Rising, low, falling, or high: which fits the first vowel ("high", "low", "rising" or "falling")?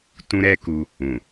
high